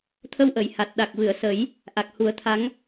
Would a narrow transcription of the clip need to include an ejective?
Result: no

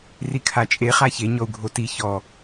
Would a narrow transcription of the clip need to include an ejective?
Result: yes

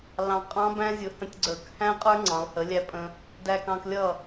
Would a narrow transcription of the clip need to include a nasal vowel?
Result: yes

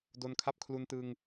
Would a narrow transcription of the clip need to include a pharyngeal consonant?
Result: no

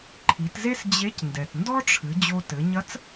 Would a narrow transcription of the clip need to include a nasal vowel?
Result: no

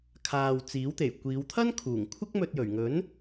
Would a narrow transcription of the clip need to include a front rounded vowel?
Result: no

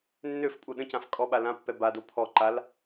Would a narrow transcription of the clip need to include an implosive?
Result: yes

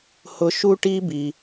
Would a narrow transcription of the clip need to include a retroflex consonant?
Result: yes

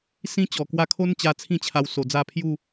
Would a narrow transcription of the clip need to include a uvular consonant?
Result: no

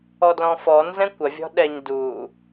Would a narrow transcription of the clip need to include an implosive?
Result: yes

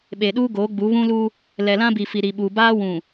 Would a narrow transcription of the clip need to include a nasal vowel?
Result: yes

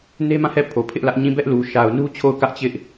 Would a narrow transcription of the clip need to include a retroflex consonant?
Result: no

